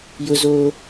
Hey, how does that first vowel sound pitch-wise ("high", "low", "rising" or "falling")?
high